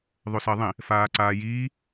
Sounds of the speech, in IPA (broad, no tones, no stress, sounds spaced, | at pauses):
ðˤ o s ɜ ðˤ ĩ | f aː ǀ aː j iː